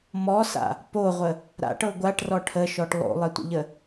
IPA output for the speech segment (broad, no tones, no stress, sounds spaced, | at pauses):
m ɔ s a̰ | p o ʁʷ ə | ɾ a̰ ʈ ɤ ɡʷ a ʈ r ɔ ʈʰ ə ʃ ɔ ʈ lˠ o̰ lˠ ɘ tʷ ə̰ ʎ ə